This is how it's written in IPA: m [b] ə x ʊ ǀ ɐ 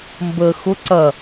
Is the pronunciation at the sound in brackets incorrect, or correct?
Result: correct